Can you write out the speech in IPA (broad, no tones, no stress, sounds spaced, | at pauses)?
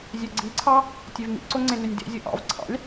zʲ ø ɡ͡ǀ i ǀʰ ɑ | tʲ e v m ḭ ǀ o ŋ͡ǀ ẽ n ø nʲ d ḛ zʲ o ʔ ɑ̰ v ǀʰ ɑ̰ lʲ